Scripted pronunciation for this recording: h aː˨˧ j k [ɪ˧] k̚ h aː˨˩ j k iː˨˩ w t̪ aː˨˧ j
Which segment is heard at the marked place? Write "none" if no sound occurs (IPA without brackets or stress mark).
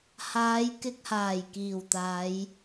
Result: ɪ˧